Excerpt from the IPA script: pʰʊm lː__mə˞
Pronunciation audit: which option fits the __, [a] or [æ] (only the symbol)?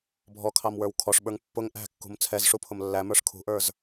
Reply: æ